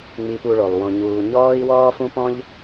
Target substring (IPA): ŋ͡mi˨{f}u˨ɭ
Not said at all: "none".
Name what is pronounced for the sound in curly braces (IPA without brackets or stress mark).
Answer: p